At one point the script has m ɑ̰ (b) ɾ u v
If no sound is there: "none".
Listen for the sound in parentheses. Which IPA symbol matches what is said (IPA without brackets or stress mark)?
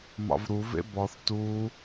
v